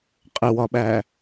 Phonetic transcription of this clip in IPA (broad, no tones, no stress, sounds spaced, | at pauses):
qʼ ɪ w ɒ ɓ æ